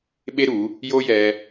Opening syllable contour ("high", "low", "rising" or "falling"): high